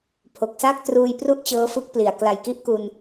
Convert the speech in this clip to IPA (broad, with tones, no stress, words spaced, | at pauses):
pʰo˨˩k̚sa˥˩k̚ truː˧jpru˥˩ʔ t͡ɕɤː˦˥fɯ˦˥k̚pli˨˩a̯ kla˨˩jki˦˥ʔku˧n